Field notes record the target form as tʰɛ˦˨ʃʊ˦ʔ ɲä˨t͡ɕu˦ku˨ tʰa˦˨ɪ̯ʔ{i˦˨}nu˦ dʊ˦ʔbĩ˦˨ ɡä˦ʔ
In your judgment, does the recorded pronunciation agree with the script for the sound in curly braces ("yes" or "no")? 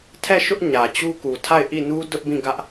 yes